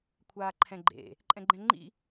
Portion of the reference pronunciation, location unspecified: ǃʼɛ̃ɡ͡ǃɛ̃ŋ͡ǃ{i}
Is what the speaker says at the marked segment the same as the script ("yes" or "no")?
no